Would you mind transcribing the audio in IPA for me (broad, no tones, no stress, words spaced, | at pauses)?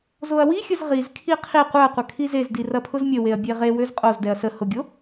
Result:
zoɐ̯wixʲəz ʁizkʰi qʰi qʷœɐ̯qʷɐ kʰizezdi rɐpʰʊzmʲəweɐ̯ bʲeʁewøz qʼozdɛɐ̯ sə hʊɡʲo